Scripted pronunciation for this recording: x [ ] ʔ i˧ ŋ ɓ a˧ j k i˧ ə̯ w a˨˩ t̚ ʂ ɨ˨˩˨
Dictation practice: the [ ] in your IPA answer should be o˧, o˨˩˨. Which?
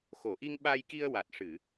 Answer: o˨˩˨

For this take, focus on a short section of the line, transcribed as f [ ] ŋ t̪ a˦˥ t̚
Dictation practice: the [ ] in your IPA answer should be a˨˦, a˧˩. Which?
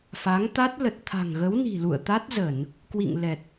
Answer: a˨˦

